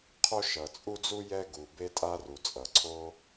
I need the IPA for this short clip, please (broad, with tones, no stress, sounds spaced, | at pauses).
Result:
qʰ o˥ ʃ ʌ˩ t͡sʼ u˥ d͡z u˥ j ɛ˥ ɡ u˩ b e˥ tʼ a˥ r u˩ t͡sʼ ʌ˩ ǀʰ o˥